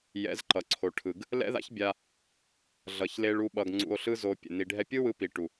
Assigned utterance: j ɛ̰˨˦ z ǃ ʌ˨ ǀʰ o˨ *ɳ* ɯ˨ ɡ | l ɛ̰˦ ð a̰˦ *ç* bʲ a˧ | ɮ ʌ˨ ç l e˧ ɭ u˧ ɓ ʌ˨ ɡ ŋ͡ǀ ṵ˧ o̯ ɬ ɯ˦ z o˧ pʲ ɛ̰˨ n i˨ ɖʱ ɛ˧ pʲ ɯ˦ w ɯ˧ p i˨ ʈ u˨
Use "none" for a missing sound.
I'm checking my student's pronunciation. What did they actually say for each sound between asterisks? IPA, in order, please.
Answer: ʈʰ, ç

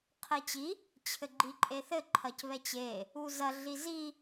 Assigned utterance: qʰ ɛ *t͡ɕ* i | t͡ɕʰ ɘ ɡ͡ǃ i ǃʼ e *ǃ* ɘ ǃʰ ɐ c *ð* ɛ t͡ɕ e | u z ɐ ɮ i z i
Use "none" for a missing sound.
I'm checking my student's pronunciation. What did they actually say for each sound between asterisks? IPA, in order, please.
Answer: t͡ɕ, θ, β

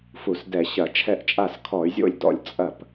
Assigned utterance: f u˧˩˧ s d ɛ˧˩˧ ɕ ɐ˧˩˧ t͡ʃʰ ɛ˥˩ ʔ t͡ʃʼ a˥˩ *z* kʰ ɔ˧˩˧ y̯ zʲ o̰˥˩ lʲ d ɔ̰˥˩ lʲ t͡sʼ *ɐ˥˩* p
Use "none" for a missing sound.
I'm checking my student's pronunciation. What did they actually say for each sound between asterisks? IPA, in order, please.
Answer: s, ɐ˥˩

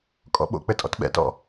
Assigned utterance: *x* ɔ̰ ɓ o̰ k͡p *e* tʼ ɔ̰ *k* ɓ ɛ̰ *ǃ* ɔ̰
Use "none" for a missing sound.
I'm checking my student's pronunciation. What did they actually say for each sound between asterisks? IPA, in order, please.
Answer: kʼ, ɘ, t, t

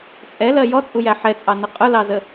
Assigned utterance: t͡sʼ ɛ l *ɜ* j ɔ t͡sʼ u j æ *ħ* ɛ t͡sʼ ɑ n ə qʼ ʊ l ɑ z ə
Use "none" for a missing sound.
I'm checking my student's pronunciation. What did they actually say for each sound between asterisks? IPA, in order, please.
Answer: ɜ, ħ

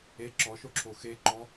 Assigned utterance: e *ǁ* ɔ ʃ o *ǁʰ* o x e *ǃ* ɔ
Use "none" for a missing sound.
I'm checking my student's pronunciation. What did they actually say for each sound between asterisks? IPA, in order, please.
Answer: ǁ, ǁʰ, ǃ

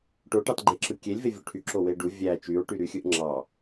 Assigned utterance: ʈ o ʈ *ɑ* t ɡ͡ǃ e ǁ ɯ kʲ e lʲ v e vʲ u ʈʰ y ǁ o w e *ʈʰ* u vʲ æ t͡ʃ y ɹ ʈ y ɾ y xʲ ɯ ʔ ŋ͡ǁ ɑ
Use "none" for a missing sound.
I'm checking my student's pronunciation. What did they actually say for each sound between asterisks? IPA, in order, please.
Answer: ɑ, ɖ

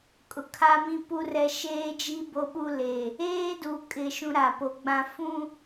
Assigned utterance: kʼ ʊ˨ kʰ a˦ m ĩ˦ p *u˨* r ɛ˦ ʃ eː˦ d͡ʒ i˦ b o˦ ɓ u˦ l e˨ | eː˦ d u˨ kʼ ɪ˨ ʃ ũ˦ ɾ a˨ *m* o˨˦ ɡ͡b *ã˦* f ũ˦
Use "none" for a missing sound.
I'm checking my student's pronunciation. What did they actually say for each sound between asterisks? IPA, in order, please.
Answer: u˦, p, ã˦

